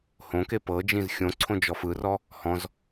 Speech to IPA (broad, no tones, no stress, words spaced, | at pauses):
hõke pɤd͡ʒĩz xʲõǀʰõ d͡ʒɔfɯrɔ | hɔ̃z